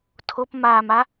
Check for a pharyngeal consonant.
absent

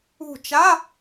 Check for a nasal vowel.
absent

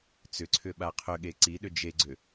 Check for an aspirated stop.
present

